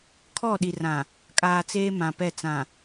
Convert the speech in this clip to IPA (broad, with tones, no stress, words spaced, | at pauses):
kʰɔ˦˨ ɗi˨rã˨ | kʼaː˨ t͡seː˦mã˨pɛ˦˨ t͡sã˨